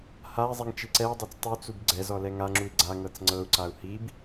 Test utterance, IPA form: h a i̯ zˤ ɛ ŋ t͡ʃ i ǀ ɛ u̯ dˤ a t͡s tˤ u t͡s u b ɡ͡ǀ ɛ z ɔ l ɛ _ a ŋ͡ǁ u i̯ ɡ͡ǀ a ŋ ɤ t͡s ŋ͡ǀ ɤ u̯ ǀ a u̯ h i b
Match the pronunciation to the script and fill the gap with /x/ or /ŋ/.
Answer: ŋ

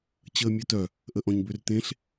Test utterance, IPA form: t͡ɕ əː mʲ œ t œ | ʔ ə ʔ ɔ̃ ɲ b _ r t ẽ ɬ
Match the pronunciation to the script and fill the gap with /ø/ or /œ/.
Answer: ø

